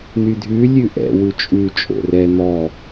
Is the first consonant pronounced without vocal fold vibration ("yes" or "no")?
no